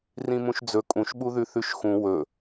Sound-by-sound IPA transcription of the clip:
rĩmũʃd͡zɵ kʼũʃɓuðʉ θʉʃxũ wɵ

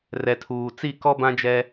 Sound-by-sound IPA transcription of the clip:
rɛ˨tʰuː˨t͡si˦˨ kɔ˦bã˦d͡ʒɛ˦

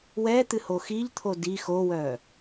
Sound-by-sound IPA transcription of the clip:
wɛt̪ɨ hoxiʎt̪ʰo di xowœ

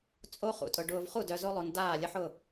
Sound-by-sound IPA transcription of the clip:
t͡sʼo˦ χṵ˨tʼʊ˨ ɖʊː˨v χu˥˩dœ˨zo˦lˠo˨n daː˥˩lʲə˦ħʊ˥˩

